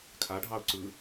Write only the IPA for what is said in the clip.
kʰaɖʱɑʊ̯ ǀɯ

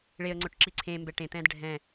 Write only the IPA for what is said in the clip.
ɭeə̯ŋ͡ǀʊʈ ǁiǀʰẽmbɛ ʈẽt̪ɛ̃ːd ɖʱɛ̃

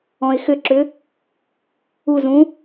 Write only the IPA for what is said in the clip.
ɔ̃ɪ̯xʏǁʏ | uzũ

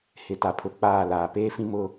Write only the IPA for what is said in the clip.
hɪ˨ ta˨pʰʊ˨ k͡paː˦˨laː˨ peː˦fĩ˦mʊ˦

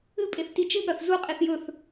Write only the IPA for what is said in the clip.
ɨpʼeθ tit͡ʃɨɠɐθ zuqʼiθ jɵθ

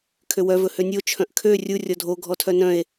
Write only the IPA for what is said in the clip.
kʰøwœ vɵhønʲo t͡ʃʰœ̃ʔkʰø rʲu rʲɔdʱo ɡʱɔtʰœnœ̃e̯

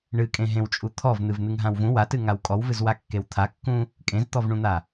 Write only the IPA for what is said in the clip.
ɳɨkʼẽɦẽwt͡ʃʼu t̪ʰɔvn̪ɨv n̪ɨŋɦãwvũ watɨ ŋawkʼɔwvɨz wakːewt̪ʰakːũ | kʼẽzt̪ɔvɳũn̪a

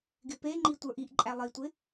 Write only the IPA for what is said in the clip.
ɡɪpeŋ͡ǃi tʷə˞ʔiʔǃʼæ lˠitʷɪ

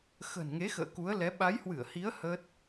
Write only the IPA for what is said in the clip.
xə̤˨˩nŋe˨˦xə̰ː˧˨ ku˨˦ə̯lɛ˨˦ ɓa˨˦jhwɨ˧˩ə̯hi˨˦ə̯ hə˦˥t̚

